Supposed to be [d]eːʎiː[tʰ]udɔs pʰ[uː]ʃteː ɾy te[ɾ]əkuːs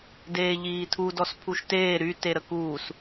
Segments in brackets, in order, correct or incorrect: correct, correct, incorrect: u, correct

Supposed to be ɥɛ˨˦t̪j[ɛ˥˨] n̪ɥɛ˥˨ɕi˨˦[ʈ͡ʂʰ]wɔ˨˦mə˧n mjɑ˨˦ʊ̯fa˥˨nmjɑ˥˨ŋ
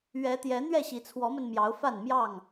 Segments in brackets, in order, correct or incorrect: incorrect: ɛ˨˦, incorrect: t͡sʰ

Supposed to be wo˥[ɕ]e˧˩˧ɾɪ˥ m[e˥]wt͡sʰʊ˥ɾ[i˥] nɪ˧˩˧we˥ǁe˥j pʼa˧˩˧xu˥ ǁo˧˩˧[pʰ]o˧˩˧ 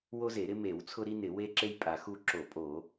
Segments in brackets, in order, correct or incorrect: incorrect: z, incorrect: e˧˩˧, correct, incorrect: pʼ

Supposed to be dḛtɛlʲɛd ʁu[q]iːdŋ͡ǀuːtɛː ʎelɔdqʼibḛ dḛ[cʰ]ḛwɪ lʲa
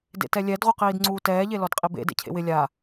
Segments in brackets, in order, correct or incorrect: correct, correct

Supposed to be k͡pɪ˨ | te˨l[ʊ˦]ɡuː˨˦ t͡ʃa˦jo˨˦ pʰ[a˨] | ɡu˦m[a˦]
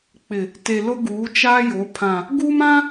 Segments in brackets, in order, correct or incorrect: correct, incorrect: ã˨, incorrect: ã˦

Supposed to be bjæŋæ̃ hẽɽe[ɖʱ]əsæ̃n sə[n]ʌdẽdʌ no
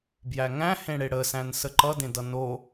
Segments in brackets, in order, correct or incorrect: incorrect: ɽ, incorrect: ǃ

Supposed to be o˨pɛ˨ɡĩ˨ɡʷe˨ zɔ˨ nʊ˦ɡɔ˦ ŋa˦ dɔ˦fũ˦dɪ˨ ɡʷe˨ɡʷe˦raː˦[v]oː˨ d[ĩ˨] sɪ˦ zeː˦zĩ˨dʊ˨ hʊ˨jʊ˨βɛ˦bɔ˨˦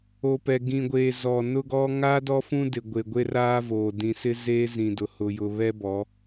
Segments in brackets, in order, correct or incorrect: correct, correct

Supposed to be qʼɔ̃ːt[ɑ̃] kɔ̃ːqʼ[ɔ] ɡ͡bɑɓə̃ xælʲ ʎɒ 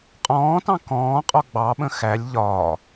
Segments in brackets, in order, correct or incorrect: correct, correct

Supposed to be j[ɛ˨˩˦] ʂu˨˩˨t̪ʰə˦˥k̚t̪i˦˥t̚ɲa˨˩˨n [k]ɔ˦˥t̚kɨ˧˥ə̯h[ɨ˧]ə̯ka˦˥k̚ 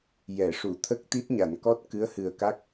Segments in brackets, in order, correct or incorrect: incorrect: ɛ˨˩˨, correct, incorrect: ɨ˨˩

